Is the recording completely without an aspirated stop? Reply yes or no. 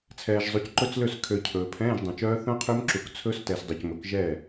no